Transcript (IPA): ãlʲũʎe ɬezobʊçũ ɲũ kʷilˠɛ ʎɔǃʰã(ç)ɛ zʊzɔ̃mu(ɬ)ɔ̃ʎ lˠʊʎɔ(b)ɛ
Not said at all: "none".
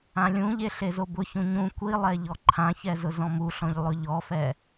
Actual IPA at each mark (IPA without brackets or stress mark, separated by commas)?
ç, ɬ, f